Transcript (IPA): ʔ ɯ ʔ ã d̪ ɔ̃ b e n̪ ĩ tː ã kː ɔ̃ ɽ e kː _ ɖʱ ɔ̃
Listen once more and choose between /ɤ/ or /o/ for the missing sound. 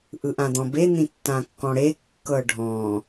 ɤ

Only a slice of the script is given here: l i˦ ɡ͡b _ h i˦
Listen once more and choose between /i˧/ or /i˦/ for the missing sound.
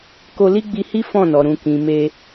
i˧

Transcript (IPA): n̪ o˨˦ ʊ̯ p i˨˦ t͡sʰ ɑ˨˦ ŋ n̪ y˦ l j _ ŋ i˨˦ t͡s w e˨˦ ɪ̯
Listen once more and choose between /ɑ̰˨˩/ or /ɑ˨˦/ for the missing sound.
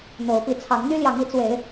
ɑ˨˦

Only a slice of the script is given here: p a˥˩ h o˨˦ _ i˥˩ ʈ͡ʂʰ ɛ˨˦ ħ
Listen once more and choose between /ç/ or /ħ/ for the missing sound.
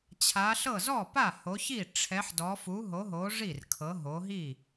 ç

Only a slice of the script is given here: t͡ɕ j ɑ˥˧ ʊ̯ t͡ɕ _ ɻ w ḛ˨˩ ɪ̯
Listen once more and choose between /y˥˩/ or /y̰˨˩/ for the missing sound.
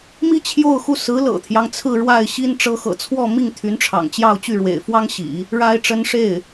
y˥˩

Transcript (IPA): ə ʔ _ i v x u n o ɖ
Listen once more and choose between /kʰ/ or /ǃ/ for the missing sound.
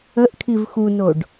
kʰ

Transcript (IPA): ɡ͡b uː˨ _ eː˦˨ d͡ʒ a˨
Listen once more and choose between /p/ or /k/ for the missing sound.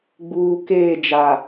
k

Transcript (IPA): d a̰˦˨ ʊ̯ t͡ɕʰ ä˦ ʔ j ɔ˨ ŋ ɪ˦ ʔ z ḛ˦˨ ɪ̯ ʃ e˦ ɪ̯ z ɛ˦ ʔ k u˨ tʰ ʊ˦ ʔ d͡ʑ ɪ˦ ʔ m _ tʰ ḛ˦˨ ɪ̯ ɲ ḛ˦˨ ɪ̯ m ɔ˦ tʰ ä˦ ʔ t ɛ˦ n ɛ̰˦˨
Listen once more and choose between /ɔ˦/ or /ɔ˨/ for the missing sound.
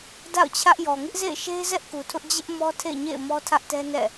ɔ˦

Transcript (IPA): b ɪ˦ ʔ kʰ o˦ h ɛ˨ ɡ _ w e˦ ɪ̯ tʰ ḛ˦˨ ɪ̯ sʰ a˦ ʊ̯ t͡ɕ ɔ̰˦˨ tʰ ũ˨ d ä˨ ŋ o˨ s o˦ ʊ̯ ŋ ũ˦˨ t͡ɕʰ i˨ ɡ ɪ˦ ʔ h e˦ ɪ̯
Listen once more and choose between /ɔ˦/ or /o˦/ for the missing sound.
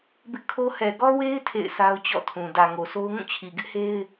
ɔ˦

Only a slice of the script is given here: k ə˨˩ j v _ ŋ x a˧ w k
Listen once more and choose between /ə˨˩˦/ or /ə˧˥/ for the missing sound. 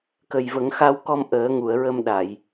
ə˨˩˦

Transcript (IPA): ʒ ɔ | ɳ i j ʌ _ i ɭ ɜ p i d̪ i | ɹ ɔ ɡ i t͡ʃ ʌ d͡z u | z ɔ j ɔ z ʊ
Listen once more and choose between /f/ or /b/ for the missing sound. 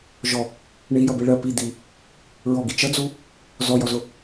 b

